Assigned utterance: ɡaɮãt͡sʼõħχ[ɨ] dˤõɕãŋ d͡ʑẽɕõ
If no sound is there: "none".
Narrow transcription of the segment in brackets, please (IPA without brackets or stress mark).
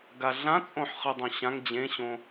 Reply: ɨ